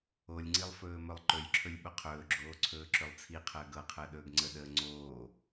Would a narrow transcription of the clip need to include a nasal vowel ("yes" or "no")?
no